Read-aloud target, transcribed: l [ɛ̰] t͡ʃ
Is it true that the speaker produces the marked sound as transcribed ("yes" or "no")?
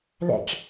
yes